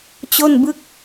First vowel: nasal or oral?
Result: oral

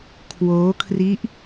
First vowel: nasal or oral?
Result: oral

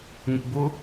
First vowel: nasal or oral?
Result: oral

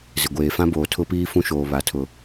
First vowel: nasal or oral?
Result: oral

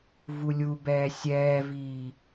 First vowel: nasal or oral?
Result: oral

